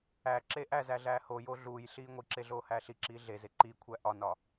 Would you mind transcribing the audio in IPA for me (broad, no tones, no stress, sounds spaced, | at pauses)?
æ ǁ e ʔ æ z æ ɮ æː h o j o ɮ uː j ɬ iː ŋʷ i ǁ e ɮ oː h æː ɬ i ǁ iː ɮ e z e ǃ i kʷʰ æ ʔ ɒ n ɒ